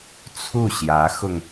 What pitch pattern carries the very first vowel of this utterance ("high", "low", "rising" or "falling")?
falling